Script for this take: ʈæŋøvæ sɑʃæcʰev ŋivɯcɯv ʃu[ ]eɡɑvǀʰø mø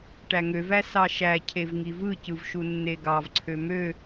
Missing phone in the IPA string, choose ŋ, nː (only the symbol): nː